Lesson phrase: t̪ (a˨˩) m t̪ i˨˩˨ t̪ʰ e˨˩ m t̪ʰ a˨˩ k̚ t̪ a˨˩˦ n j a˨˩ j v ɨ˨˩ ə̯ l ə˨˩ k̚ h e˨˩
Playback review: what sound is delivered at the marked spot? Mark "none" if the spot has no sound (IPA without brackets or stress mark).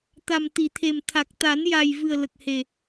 a˨˩